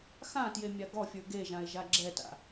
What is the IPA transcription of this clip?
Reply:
x ã t j e mʲ a ɡ ɔ fʲ ə˞ ɡ e ʒ ã e̯ ʒ a ɡ͡ǁ ɛ t a̰

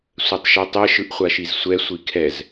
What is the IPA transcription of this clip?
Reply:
sʷ ɛ tˤ ʃ ɛ tˤ ɛ ʃ ɯ ʔ χʷ a ʃ i z sʷ ɛ sʷ i kʰ ɛ z

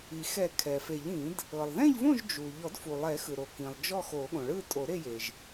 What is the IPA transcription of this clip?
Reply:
i˩ x ɛ˨˩˦ kʰ ɛ˩ f e˨˩˦ ʎ ĩ˨˩˦ d | ɤ˩ lˠ ð ɛ̃˥˨ ʎ v õ˥˨ ʒ d͡ʒ u˩ ʎ ɔ˨˩˦ d f u˩ lˠ ɛ˨˩˦ x ɯ˩ ɾ o˩ k ĩ˩ lˠ d͡ʒ ɔ˥˨ x o˨˩˦ ɠ õ˩ ɭ ɯ˥˨ tʼ o˨˩˦ ɾ e˥˨ j e˩ ʒ

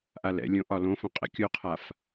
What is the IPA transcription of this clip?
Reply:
ʔ a l ɛ̰ lʲ õ ʔ ɒ l õ f õ qʼ ɛ̰ kʲ o qʰ a f

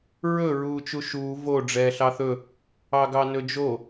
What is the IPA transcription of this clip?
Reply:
ɹ ɵ ɹ uː t͡ʃ u ʃ uː v o ɖ͡ʐ ɛː ɬ ɑ θ ɵ | ɑ ɡ ɑ n ɵ d͡ʒ o

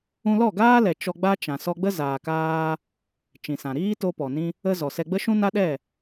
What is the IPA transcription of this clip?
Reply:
ũ˧ l ɔ˦˨ ɡ aː˦ l ɛ˨ t͡ʃ ɔ˧ ɡ͡b a˦ t͡ʃ ã˨ s ɔ˧ ɡ͡b ə˦ z aː˨ k aː˧ | t͡ʃ ĩ˨ s ã˨ ɾ iː˦ t o˧ p ɔ˨ n ĩ˧ | ə˧ z ɔ˨ s ɛ˧ ɡ͡b ə˦ ʃ ũ˦ n a˦ ɗ ɛ˦˨

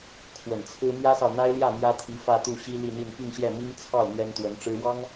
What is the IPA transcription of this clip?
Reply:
kʰ w ə˨˩ n t͡sʰ ɹ̩˥ m j ä˥ s ɑ˨ ʊ̯ n̪ a˥ ɪ̯ l j ä˥˩ m j ä˥ t̪ʰ i˧˥ f ä˥˧ t̪ u˥˩ ɕ i˥ l i˥˧ n̪ i˥˧ n p i˥˧ ŋ ɕ j ɛ˥˩ m i˥ ŋ t͡sʰ ɑ˥˩ ʊ̯ n̪ ɥ ɛ˥ n t̪ w ə˧˥ n ʈ͡ʂ ɻ̩˥ w ɑ˥ ŋ

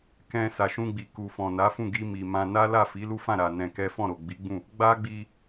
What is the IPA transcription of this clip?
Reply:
k ɛ̃˧ s a˨ ʃ ũ˧ ɡ͡b i˨ k u˨ f ɔ̃˨ n a˨˦ f ũ˦˨ ɡ i˧ m i˨ m ã˧ n a˦ l a˦˨ f i˨˦ l u˦ f ã˦˨ ɾ a˨ n ɛ̃˧ k ɛ˦ f ɔ̃˦˨ ɾ o˨ ɡ͡b i˨˦ ɡ͡b ũ˦˨ | ɡ͡b a˦ ɡ͡b i˧

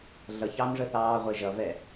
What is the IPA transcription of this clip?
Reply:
ɮ ʌ ç ɑː m ʐ ə θ ɑː ʁʷ ɛ ʒ ʌ v ɛ

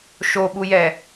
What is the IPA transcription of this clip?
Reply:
ʃ o ɓ u j ɛ

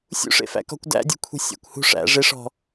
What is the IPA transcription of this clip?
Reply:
sʲ ṵ ʂ ḛ f æ̰ k ɔ̤ kʷ d æ̰ dʲ ṳ kʷʰ e̤ sʲ æ̰ kʷ h ṳ ʂ æ̰ ʐ e ʂ ɔ̤

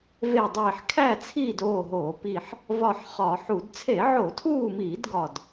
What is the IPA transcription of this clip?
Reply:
v e˦˨ dˤ iː˦˨ ħ kʰ æ˦˨ t͡sʰ iː˦˨ d oː˦˨ ɦ oː˧˩˧ p i˦˨ ħ | v ɒ˦˨ ħ χ ɒ˧˩˧ ħ u˧˩˧ d t͡sʰ e˧˩˧ ʕ o˧˩˧ tʰ uː˦˨ m iː˧˩˧ d ɡ ɒ˦˨ d

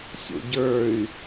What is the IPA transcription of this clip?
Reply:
sʲ o̰ ɟ ə˞ y̯

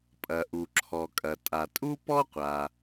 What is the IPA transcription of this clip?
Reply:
pʼ ɐ˩ ʔ u˩ ǁʰ ɔ˩ kʼ ɐ˩ tʼ a˩ tʼ u˥ p ɔ˥ qʷ a˩

